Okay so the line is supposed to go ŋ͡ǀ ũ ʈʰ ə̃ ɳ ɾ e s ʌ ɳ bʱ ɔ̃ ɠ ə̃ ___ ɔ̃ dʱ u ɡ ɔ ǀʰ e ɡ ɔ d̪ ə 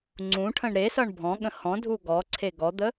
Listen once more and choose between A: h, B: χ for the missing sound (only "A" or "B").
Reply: A